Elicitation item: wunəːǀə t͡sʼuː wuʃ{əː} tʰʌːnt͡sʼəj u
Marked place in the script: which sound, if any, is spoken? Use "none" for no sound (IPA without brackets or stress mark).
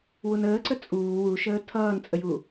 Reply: əː